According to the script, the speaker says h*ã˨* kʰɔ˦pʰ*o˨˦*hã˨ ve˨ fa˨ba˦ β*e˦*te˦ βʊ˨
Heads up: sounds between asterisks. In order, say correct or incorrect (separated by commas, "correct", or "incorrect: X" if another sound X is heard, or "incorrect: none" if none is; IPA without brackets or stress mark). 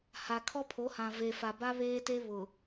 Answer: incorrect: a˨, correct, incorrect: eː˦